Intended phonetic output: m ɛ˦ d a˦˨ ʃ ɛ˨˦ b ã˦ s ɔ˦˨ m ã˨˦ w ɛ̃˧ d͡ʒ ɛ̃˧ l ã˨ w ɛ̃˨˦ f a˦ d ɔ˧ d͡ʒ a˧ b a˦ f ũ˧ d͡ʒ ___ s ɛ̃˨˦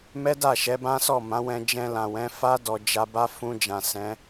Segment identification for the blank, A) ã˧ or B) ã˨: B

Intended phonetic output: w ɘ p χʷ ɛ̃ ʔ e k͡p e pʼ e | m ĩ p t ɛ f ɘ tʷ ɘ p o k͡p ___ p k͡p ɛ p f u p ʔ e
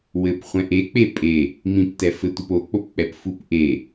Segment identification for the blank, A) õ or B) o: B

